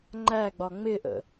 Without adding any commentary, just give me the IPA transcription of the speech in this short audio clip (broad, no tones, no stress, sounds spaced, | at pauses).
ŋ͡ǃ æ ɡ͡b ɒ ŋ͡m ɪ ʔ ə̰